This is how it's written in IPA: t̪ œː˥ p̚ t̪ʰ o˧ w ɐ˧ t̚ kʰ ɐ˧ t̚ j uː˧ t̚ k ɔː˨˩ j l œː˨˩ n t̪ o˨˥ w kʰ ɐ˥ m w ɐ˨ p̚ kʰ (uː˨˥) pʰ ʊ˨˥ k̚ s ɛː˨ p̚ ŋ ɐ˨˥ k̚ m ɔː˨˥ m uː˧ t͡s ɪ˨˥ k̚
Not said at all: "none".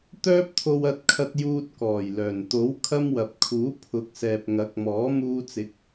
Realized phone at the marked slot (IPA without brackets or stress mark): uː˨˥